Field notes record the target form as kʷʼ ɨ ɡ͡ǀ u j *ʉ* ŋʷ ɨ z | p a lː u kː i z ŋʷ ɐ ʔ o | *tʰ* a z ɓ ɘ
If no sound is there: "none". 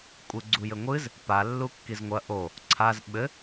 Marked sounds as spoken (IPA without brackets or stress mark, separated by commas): ɘ, ǀʰ